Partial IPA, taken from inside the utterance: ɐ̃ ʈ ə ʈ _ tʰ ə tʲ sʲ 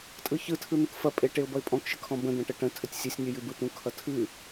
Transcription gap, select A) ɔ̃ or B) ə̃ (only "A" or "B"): B